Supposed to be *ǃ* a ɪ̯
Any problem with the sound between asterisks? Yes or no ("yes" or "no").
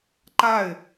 no